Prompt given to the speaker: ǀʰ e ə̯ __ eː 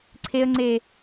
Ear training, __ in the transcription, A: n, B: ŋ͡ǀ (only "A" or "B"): B